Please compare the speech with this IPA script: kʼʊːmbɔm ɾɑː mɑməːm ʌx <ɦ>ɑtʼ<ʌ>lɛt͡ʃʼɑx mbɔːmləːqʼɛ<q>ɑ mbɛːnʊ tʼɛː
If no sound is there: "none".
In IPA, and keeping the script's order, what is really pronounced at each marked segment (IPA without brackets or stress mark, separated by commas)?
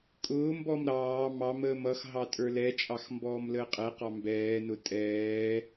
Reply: ɦ, ə˞, q